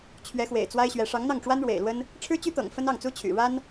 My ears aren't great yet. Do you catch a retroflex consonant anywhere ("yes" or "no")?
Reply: yes